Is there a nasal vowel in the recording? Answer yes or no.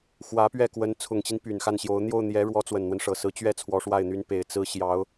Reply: no